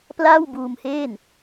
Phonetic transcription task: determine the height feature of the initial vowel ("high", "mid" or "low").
low